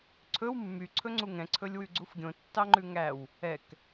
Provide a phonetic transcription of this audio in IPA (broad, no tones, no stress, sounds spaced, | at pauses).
ǀʰ ɵ w mː y ǀʰ ɵ ŋ͡ǀ u ŋ ɛ̃ ǀʰ ɵ lʲ w ʉ ɡ͡ǀ u f ɡʲ õ tː ɑ ŋ͡ǃ ʉ ŋ æ w | ɛ k